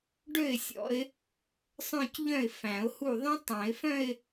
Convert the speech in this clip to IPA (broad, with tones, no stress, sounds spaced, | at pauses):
ɖ ø˥˩ ɪ̯ sʲ ɔ̰˨˦ ɪ̯ | sˤ œ̃˥˧ c ʎ œ̃˥˩ ɪ̯ f æ̃˨˩˦ ʊ̯ h u˥˩ ðˤ ẽ˦˥ tˤ æ̃˨˩˦ ɪ̯ f œ̃˥˧ ɪ̯